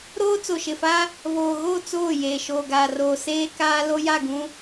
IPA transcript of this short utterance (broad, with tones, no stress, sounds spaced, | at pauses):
ɾ oː˦ t͡s o˨ ʃ ɪ˨ f a˦ | β oː˨ ɣ o˦˨ t͡s oː˦˨ j eː˨ ʃ oː˨ ɡ aː˨ r oː˨ s eː˦ k aː˦ l o˦ j a˦˨ ɡ ũ˦